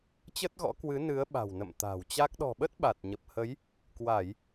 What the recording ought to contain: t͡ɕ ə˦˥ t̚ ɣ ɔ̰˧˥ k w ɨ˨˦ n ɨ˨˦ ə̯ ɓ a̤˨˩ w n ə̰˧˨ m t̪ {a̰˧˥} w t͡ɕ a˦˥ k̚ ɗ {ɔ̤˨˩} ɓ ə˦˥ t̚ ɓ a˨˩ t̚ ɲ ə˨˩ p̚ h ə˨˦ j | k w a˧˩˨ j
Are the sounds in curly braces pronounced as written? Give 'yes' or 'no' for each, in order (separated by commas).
no, yes